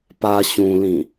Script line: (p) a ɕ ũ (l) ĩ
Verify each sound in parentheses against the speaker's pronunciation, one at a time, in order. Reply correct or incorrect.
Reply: correct, correct

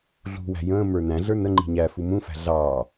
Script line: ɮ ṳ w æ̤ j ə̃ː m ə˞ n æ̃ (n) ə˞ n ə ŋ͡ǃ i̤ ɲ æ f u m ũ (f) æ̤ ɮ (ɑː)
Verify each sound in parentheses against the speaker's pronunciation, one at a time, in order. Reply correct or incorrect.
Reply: incorrect: ɮ, correct, correct

